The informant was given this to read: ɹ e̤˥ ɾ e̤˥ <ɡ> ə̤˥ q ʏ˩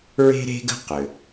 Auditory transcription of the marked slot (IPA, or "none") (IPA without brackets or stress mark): ɡ